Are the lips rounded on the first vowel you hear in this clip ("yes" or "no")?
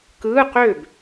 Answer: no